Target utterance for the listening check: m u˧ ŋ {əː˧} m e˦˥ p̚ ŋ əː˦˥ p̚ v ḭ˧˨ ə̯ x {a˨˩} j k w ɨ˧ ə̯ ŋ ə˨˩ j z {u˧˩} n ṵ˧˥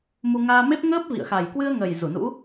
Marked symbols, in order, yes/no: no, yes, yes

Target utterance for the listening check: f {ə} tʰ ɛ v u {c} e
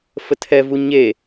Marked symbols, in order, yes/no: yes, no

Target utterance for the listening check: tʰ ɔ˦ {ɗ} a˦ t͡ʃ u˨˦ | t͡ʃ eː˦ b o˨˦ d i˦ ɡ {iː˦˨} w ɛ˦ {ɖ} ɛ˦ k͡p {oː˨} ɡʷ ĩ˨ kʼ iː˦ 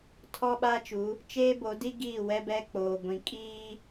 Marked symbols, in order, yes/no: no, yes, no, yes

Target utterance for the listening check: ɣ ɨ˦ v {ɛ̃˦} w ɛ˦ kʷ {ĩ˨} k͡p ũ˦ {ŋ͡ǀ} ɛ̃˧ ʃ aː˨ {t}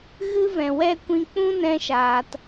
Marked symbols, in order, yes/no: no, no, no, yes

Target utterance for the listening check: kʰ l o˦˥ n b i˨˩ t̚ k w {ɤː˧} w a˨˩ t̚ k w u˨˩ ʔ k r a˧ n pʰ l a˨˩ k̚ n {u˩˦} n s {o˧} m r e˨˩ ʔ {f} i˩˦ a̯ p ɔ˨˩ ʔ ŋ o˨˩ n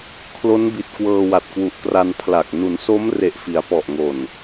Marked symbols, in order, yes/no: yes, yes, no, yes

